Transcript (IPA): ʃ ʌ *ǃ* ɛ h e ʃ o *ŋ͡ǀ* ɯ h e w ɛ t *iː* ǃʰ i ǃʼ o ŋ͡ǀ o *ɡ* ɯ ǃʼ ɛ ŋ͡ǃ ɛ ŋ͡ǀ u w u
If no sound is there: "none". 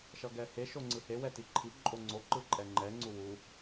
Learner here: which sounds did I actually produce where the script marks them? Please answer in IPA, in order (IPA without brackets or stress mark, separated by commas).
ɡ, ŋ͡ǀ, i, ǃ